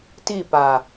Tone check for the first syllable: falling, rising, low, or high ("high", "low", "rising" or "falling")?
falling